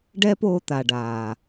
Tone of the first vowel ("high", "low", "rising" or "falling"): high